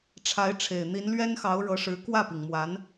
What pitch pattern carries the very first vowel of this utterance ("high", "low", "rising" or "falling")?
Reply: rising